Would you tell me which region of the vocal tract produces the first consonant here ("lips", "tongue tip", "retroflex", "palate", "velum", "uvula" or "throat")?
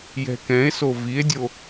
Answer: palate